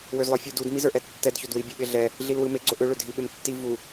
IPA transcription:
w ø z lˠ ə˞ fʲ u d u d m i z ə˞ ʔ ɛ tː ɛ d ç o d w i bʲ ɯ ɓ ɪ ɮ ɛ | ɮ i l w ɯ m e ɡ͡ǀ o ʔ ø ɭ ø dʱ i ɓ ɪ m tː i v u

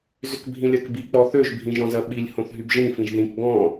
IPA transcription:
z ʏ k bʱ ĩ lʲ ɜ k b i k͡p ɔ θ ø ʒ bʱ ĩ ʒ ɔ̃ z ɜ ɓ i lʲ h õ θ ɦ y b ʒ ĩ f ĩ ʒ ð ĩ k ɡ ɔ̃

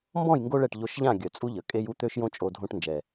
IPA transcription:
m b ɔ̃˦˨ j ŋ ɡ o˧ ɭ ɛ˨ ʈ ʎ o˧ ʃ ʎ ã˦˨ ɡʲ œ˨ t͡sʼ u˦ ʎ ə˨ kʼ e˦ j u˦ t̪ ø˦ ʃ j õ˦ t͡ʃʼ o˧ dʱ õ˧ ʈ n d͡ʒ ɛ˨

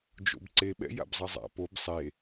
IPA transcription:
d͡ʒ o̰ b ǀ e ɓ ɛ̰ j a̰ b zˤ ɐ zˤ a̰ p o b sˤ e

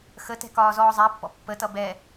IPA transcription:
x ə t ɛ̤ k ɒː z ɔː zˤ æ pː ɔ̰ pː ə t ʌ b ɛ

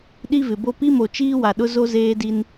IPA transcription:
ɗ i˦ v ɪ˨ b o˦ p i˦ m o˨ t͡ʃ iː˦ w a˨ ɗ ʊ˦ z o˦ z eː˦ d i˦ n

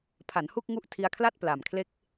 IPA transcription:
pʰ a˩˦ n h u˥˩ k̚ ŋ u˥˩ ʔ tʰ i˧ a̯ kʰ l a˥˩ t̚ p l a˨˩ m kʰ l e˥˩ k̚

